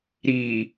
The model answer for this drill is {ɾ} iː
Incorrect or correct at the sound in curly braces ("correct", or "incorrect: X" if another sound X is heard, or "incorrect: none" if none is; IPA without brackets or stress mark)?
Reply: correct